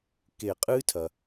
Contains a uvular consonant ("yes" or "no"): yes